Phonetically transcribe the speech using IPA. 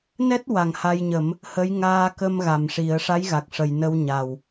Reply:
nɛ˦˥t̚ wa˨˩ŋha˧jɲə˨˩˦m | hə˧˥j ŋaː˧kə˧m ɣa˨˩mʂi˨˩˦ə̯ ʂa˧˥jɣa˨˩k̚ʂə˨˩j nə˧wɲa˨˩w

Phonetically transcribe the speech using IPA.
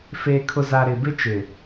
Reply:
feː˨kʰʊ˨za˨ ɾɪ˨bɪ˦t͡ʃɪ˨

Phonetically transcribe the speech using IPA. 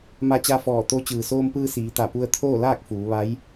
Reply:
ma˧t͡ɕa˧fɔː˧˩ t̪o˧˥ t͡ɕɯː˩soː˧mpɯː˧ siː˩˧t̪a˧˩pu˧ə̯ t̪ʰoː˥˨laː˥˨k̚ fuː˩˧ʋa˧˥j

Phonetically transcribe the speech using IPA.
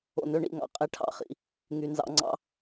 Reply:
o̰˨nø˦ɳḭ˦˨ŋɑ̰˦ qʼe˦ʈʰɑ̰˦˨χḭ˦ | ŋy˨ nzɑ̰˨ŋ͡ǀɑ̰˦

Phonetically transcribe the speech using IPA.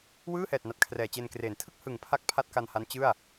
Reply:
wɯː˥˩hɛː˨˩t̚ na˨˩t̚kʰrɛː˨˩t͡ɕe˧nkreː˩˦n tʰɯ˥˩k̚ hɯ˨˩ŋpʰa˦˥k̚ pʰa˥˩t̚ka˧nha˦˥n t͡ɕɯ˥˩a̯

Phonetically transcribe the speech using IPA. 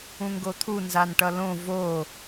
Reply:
ũŋɡot̪ʰu nzanʈʌlõ vo

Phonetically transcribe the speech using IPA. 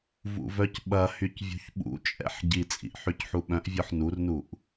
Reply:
vṵvœcɓɐhyc vʲṳçɓṵt͡ʃʼɛ̰ħ ɟit͡sʼḭʔ ħycħuɓœ̃ʔvʲɔħ nurnuʔ

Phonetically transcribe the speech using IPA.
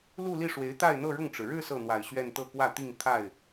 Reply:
lu˥˧li˥˩ʂwe˧˥ɪ̯ t̪a˥˧ɪ̯n̪ɤ˥˧ɻʊ˥˩ŋʈ͡ʂɻ̩˩ ɻɻ̩˥˧ sɤ˥˩n̪wa˨˩ɪ̯ɕɥɛ˥˧n t̪ɤ˥˧kwä˥˧t̪i˥˧ŋ t̪ʰa˥˩ɪ̯

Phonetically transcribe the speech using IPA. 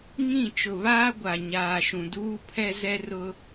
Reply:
ŋĩ˦˨ t͡ʃʊ˨βaː˦ ɡʷa˨ɲaː˨ ʃũ˨duː˦pʰɛ˦ zɛ˦ rʊ˦

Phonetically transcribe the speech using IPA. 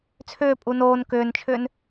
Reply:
t͡sʰʏː pʼunoːn kʏːnt͡ʃʰʏːn

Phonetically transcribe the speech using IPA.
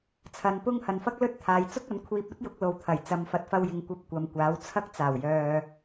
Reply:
t͡sʰɐ˨˧npʊ˥ŋ hɐ˨nfɐ˥k̚lɵ˥t̚t̪ʰaː˨j t͡sʊ˥k̚ɐ˨˥nkʷʰiː˧p̚ ɐ˥t̚jʊ˨˥k̚ lo˨wt̪ʰɐ˨˩j t͡sɐ˨˧mfɐ˨˥t̚ fɐ˧wjɪ˨ŋkʷɐ˧p̚ kʷɐ˨mkʷaː˨˥w t͡sʰɐ˥k̚ t͡saː˨˩wjœː˨

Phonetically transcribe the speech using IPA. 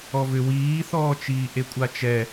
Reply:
ɔvʏ wiːθɔːt͡ʃiː ʔekʷʼat͡ʃɛ

